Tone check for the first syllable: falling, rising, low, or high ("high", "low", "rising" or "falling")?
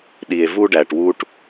low